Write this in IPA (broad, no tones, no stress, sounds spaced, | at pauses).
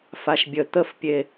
f a ʃ bʲ ə t̪ ə f pʲ e